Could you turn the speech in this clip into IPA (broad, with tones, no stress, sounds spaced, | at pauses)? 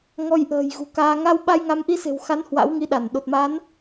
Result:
ŋ ɔ˧ j ʔ ə̤ː˨˩ j ɣ ṳ˨˩ k aː˧ ŋ a˧ w ɓ a˧ j ŋ a˨˦ m ʔ i˧ s e̤˨˩ w x a˨˦ n h w a̰˧˥ w ŋ i˧ ɗ a˧˩ n ɗ o˨˩ t̚ m a˨˦ n